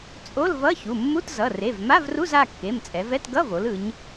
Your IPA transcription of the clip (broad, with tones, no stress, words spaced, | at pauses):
t͡sʼo˧˥˧lvʌ˧˥˧çu˩˧˩ mːu˧˥˧tzʌ˩˧˩ re˩˧˩v ma˧˥˧vru˧˥˧z a˩˧˩kːe˩˧˩mt͡sʼɛ˩˧vɛ˧˥˧t ɡʌ˧˥˧vo˩˧l ɯ˩˧ɲ